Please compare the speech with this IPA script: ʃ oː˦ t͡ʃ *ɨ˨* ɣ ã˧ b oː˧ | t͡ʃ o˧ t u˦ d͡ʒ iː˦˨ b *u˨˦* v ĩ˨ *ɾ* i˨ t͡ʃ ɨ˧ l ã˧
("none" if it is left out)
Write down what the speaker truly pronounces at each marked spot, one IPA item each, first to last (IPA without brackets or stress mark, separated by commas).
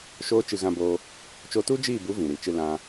ɨ˧, u˨˦, ɾ